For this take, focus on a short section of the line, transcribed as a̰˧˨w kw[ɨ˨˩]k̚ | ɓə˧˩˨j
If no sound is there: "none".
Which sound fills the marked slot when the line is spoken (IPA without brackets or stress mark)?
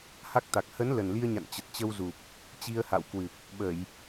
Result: ɨ˨˩